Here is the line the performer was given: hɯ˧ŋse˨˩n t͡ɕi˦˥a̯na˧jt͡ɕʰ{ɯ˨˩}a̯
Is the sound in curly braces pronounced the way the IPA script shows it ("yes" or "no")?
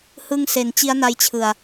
yes